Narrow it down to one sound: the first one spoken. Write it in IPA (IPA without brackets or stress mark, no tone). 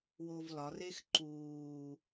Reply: w